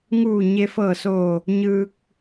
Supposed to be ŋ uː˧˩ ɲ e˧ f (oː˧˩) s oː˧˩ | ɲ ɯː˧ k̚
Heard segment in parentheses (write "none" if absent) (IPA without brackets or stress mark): ɤː˧˩